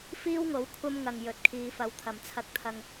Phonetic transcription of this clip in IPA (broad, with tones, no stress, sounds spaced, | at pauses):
f iː˥ w ŋ o˨˥ w kʷʰ ɐ˥ m ŋ ɐ˨ ŋ j ɵ˨˥ t̚ kʰ iː˨˧ f ɐ˨˧ w t̪ʰ ɐ˨˩ m t͡sʰ ɐ˨ k̚ t̪ʰ ɐ˨ ŋ